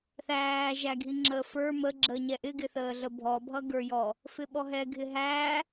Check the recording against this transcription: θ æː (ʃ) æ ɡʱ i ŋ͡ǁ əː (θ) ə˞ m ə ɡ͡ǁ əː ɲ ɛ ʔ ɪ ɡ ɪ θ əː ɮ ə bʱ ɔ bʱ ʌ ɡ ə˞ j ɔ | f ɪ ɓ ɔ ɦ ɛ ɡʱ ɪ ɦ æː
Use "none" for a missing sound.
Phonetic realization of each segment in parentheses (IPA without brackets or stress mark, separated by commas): ʒ, f